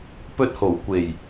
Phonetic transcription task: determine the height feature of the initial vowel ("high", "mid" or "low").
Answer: mid